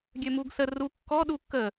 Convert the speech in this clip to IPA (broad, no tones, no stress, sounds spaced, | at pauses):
ɡʲ ø m u ɡ s ə r u kː ɔ ɗ u kː ə